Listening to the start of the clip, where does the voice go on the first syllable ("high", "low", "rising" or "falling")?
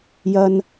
high